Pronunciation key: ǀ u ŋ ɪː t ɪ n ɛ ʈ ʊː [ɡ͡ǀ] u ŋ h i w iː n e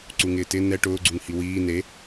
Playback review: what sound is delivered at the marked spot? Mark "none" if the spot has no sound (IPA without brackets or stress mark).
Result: ɡ͡ǀ